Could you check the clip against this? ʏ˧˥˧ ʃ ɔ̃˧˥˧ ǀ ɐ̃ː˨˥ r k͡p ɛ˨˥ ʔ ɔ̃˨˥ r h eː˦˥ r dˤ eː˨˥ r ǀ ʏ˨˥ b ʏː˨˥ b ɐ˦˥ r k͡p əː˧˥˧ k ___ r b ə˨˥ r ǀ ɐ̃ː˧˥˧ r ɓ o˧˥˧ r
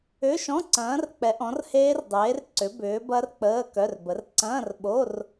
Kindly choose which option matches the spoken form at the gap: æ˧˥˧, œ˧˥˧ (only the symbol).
œ˧˥˧